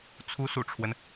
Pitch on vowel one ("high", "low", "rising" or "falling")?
rising